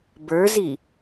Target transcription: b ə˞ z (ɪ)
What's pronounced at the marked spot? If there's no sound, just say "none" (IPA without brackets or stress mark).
i